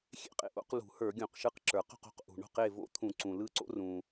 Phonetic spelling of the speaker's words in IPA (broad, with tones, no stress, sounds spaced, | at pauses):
xʲ ḛ˥˨ qʼ ḛ˨˥ ʔ o̰˨˥ q l ṳ˧˩˧ h ə˞˧˩˧ ɡʲ õ˧˩˧ q ʃ ɯ˨˥ q ǁ ə˞˩ q o̤˥˨ q o̤˨˥ q ʔ ṳ˩ ɳ o̤˥˨ q e˥˨ v o̰˦˥ t̪ʰ ũ˧˩˧ ǀ ũ˩ l ɯ˦˥ ǀ o̰˦˥ r ũ˩